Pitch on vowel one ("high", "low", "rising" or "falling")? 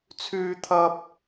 high